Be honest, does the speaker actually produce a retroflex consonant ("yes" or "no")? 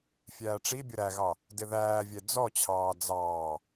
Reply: yes